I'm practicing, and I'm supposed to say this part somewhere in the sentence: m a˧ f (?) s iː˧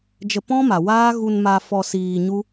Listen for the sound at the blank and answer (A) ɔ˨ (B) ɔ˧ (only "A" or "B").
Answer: B